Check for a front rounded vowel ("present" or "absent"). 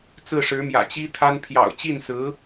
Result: absent